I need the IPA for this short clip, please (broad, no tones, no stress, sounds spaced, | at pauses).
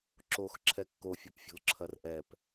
ǁ o x ǁʰ ɛ kː o fʲ o p fʲ o̤ l ǁʰ ɐ r ʔ ɛ p